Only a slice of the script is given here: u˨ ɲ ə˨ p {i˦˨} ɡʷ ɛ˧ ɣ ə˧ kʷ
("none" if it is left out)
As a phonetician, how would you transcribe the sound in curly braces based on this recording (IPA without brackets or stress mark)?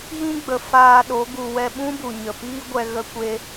i˦